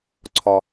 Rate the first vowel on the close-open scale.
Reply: open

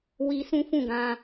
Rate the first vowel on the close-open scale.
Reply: close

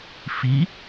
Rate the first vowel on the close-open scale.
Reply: close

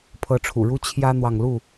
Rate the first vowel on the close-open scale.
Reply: mid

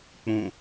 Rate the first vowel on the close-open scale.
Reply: close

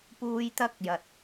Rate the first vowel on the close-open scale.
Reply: close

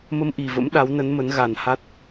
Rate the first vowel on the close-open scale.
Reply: mid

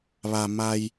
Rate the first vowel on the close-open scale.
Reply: open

